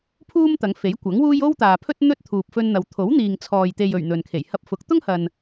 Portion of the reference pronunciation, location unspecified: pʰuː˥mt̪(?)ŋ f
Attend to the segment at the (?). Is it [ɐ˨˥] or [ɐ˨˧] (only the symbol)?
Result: ɐ˨˧